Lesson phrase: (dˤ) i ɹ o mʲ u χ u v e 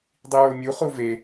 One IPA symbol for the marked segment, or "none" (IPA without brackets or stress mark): dˤ